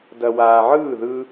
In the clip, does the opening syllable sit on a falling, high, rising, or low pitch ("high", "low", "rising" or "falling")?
low